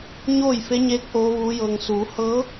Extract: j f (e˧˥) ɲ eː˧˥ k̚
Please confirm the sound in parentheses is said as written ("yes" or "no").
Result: yes